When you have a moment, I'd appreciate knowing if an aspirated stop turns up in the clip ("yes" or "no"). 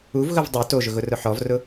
no